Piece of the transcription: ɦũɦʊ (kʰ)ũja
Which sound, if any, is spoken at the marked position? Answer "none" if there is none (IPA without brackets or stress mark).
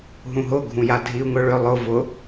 ɡʱ